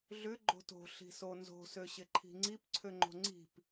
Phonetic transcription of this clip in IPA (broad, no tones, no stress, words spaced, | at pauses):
ɮʏ ɡ͡ǃo̤to̤ ɬi̤sonzo̤ søɕɪǃʰi̤ŋ͡ǀip ǀʰøŋ͡ǃo̤ŋ͡ǀi̤p